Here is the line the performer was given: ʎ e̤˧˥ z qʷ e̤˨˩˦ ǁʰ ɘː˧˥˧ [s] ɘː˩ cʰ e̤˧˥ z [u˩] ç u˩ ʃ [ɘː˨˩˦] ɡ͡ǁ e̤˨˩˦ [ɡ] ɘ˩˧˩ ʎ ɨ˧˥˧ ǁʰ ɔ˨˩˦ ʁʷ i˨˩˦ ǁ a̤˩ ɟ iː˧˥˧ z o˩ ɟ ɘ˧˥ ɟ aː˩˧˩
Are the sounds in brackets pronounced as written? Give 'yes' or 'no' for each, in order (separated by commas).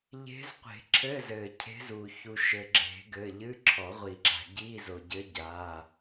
no, yes, no, yes